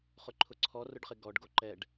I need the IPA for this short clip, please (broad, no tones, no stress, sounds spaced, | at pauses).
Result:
χ ʊ ǃʰ ʊ ǀʰ ɔ r ʊ ɖ χ ɪ ɡ ɔ ɖ ɡ o ǃ ɛ ɖ